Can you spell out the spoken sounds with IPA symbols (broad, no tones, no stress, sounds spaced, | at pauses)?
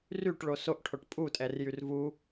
r y ʈ ɭ o s o ʔ ʈʰ o ʈ pʼ u tʼ ɛ r j y r v u